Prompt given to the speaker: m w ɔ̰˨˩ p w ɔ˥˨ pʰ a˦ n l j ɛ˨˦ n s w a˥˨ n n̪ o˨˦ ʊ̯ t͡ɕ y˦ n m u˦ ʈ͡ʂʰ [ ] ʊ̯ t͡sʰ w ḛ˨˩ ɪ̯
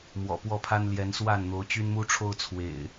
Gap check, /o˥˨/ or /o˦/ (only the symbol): o˦